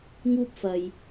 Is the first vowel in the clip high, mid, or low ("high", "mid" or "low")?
high